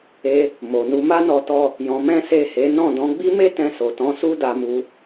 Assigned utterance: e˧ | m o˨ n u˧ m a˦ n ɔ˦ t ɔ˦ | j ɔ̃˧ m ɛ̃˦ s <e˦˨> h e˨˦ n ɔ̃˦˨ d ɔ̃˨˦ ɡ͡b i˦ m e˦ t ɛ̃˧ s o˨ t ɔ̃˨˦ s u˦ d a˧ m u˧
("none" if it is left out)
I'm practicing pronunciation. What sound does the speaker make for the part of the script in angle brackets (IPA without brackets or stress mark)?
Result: e˦˨